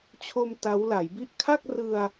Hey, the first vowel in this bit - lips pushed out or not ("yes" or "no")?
yes